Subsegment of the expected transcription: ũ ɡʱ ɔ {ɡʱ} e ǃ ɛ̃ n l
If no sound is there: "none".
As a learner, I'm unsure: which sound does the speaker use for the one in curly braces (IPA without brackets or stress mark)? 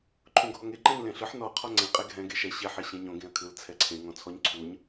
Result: ŋ